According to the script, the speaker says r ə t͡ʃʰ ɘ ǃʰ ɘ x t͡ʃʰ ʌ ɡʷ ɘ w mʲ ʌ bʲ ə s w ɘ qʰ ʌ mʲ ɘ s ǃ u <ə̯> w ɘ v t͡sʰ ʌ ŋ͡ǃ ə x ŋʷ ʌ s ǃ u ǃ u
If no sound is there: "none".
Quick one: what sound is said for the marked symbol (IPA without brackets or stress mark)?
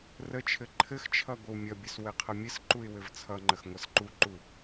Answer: ɪ̯